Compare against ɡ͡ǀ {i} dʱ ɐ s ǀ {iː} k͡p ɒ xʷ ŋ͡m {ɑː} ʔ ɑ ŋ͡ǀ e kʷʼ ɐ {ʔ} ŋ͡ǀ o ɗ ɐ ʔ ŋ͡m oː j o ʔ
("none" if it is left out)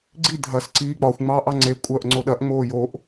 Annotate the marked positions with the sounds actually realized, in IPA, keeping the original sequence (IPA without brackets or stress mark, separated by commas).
i, iː, ɑː, ʔ